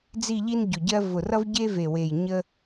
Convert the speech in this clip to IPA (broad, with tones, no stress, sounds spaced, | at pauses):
d͡z i˥˧ ʎ i˥ n ɟ ʊ˨˩ ɟ ɜ˥ v ʊ˨˩ r ʌ˥ v ɟ e˥ v e˨˩ w e˨˩ j ɲ ə˥